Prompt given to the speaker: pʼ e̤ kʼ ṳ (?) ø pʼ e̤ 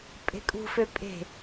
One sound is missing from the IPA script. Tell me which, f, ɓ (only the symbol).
f